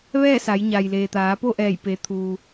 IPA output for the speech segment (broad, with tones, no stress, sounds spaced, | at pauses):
ʋ ɛː˥˨ s a˩˧ j ɲ a˩ j l eː˩ t̪ aː˩˧ p o˥˨ ʔ ɛː˧˩ j p e˩˧ t̪ʰ uː˩